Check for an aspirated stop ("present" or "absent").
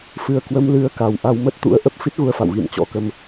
absent